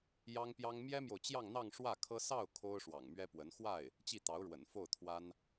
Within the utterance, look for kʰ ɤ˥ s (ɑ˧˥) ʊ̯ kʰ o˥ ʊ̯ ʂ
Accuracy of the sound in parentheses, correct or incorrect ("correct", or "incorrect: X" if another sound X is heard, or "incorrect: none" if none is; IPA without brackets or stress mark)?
incorrect: ɑ˥˩